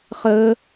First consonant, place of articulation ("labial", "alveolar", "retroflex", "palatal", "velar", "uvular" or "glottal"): uvular